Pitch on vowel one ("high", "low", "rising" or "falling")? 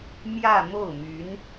falling